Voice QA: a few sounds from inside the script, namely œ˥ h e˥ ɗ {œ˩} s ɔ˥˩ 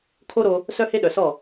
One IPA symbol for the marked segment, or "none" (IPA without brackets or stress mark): œ˩